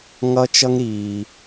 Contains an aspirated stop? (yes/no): no